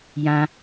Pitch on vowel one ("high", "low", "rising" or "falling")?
high